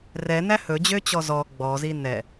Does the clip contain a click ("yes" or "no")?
no